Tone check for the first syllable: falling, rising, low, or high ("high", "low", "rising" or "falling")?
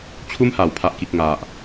high